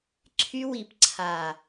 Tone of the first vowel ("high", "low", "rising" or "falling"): high